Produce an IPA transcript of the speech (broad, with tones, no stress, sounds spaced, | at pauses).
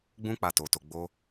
ɡ͡b ũ˦ k͡p a˧ t o˧ t o˧ ɡ͡b o˦